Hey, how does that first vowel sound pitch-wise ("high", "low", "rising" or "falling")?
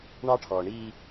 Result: high